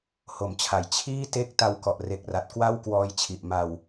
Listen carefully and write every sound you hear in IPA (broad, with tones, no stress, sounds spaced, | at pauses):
h o˩˦ m t͡ɕʰ a˩˦ j t͡ɕʰ iː˥˩ t e˥˩ k̚ t a˧ w k ɔ˨˩ ʔ r e˨˩ k̚ r a˨˩ t̚ k w a˥˩ w k w ɔː˧ j t͡ɕʰ i˨˩ ʔ m a˧ w